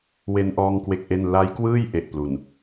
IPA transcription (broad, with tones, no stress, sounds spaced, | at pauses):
w e˧ n ʔ ɔː˧ ŋ k w e˦˥ k̚ ʔ e˥˩ n l a˦˥ j k w ɯː˥˩ j ʔ e˨˩ ʔ p l u˨˩ n